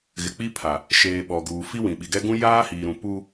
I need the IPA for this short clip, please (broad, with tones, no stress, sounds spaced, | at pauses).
ɣ ɪ˨ k͡p i˦ pʰ a˨ | ʃ eː˨ ɓ ɔ˨ ɡ uː˨ f i˦ w ĩ˨ ɓ i˨ ɡ ɛ˦ ɡ ũ˦ j aː˦ h iː˨ ɾ ũ˨ p u˦